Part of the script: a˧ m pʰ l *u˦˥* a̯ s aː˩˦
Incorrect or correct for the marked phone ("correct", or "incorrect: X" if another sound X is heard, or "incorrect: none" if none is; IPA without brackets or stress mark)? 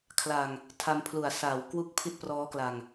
incorrect: u˩˦